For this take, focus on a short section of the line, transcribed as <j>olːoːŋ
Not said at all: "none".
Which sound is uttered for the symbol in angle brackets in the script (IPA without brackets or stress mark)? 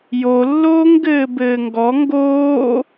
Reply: j